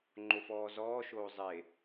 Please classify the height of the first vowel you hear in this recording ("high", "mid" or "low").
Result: mid